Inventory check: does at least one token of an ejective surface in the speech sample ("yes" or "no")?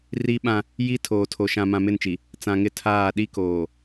no